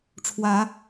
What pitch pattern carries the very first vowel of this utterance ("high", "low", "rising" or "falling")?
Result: rising